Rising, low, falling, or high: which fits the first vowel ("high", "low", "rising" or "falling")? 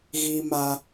high